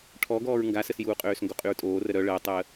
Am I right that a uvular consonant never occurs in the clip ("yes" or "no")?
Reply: no